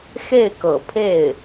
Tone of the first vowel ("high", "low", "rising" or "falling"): falling